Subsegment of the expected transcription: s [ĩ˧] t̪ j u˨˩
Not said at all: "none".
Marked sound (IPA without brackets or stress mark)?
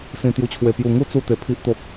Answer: ĩ˨˩